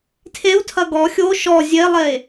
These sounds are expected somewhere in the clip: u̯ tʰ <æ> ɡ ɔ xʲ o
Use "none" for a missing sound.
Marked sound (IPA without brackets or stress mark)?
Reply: ɐ